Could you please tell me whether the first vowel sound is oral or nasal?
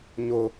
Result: oral